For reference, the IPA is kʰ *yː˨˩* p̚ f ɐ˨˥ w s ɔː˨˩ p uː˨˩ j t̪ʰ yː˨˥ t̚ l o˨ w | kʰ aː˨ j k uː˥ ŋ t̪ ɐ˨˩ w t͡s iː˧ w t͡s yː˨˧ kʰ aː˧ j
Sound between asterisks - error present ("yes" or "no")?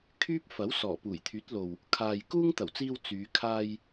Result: yes